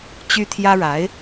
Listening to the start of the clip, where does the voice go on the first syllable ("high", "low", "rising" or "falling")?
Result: high